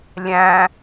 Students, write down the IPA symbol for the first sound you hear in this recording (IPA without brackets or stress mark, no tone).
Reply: lʲ